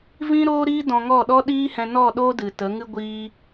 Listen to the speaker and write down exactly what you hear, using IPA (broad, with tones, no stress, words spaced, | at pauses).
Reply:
vĩ˦ɾoː˦ɾiː˦ dɔ̃˧ŋɔ˦˨ɗɔ˦ ɗiː˦hɛ̃˧nɔ˦˨ ɗoː˦dɨ˨ tə˨˦ŋɨ˦ ɡʷiː˦